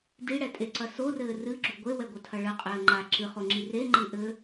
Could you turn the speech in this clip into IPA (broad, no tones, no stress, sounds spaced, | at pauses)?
d i ɽ ɛ tʼ e ǀ ɐ s o r ɘː r ɨ ɡ͡ǁ u ɡʷ e w ɛ ɡʷ ɐ tʰ ɐ ɭ ɘ qʼ ɘː ŋ͡ǃ a ǁ ɨ χ o ŋ͡ǁ i r e ŋ͡ǃ ɨ ʔ ɘ